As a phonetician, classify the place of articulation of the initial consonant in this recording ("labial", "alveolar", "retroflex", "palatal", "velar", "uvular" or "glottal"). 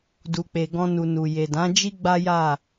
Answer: alveolar